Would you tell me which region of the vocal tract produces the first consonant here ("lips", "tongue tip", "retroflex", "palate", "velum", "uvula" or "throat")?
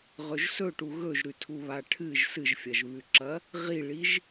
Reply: uvula